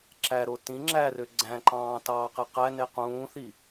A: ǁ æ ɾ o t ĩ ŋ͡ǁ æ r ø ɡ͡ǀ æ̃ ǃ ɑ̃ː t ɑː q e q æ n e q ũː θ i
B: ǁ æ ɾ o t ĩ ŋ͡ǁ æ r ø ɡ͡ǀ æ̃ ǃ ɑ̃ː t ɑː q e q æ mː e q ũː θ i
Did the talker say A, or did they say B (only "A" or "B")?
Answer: A